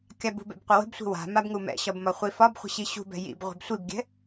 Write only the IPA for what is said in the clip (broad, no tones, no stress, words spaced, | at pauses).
kʲabṳbɛ̰b qʷəwə̤bsʷi̤ wa̤ mabŋumɛ̰ɕɒb mɒχʷifɒbχʷə̤ ɕiɕṳbɛ̤ jḭb ʁʷi̤bsʷibɡʲɛ̤